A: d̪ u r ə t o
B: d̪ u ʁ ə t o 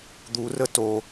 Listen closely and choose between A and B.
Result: A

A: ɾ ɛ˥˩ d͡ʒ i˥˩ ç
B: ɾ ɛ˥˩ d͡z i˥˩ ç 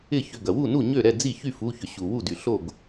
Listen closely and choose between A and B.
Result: B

